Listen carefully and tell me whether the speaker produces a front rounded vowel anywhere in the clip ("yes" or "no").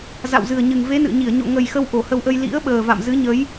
no